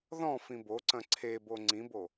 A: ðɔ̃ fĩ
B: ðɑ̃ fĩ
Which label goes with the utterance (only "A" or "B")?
A